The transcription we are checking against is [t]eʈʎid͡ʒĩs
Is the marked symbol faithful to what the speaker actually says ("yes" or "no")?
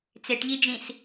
no